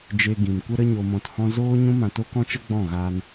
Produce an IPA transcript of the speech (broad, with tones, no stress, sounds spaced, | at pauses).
d͡ʒ e˧ ɡ ĩ˨ n kʷ ə˦ ɾ ə˦ ɲ o˧ m ɔ̃˧ t h ɔ̃˦ z oː˦ ɲ ũ˦ m ã˧ t o˦ k ɔ̃˦ t͡ʃ ə˦ ɡ͡b ɔ̃˦˨ ɣ aː˧ n